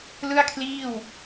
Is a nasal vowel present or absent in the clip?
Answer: absent